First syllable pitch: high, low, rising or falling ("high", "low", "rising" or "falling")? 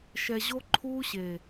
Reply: low